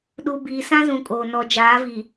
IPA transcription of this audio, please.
ɗu˨ biː˨sã˦zũ˨ kʼoː˨ nɔ˨ d͡ʒaː˨˦viː˨

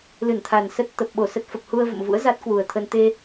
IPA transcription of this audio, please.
lɨ˧˩nt̪ʰa˨˩n sə˦˥t̚ t̪ə˨˩p̚ɓo˧˩ sə˦˥t̚fə˨˩p̚ hu˧ə̯ və̰˧˨mvṵ˧˥ə̯ za˦˥t̚kwu˨˩ə̯t̪ʰə˧n t̪e˧

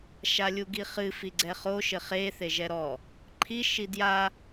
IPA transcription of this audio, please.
ʃalʲuɡiχɨ fiɡ͡ǀɛχo ʃɘχe θeʒɛɾɔ | ǃʰi ʃidja

